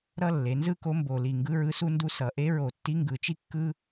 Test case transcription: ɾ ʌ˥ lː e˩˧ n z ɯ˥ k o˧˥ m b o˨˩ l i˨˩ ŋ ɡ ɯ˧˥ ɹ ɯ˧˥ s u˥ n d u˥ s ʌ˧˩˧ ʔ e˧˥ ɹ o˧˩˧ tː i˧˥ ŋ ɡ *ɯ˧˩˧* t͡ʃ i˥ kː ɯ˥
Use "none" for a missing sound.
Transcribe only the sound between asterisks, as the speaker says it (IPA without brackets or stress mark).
ɯ˧˩˧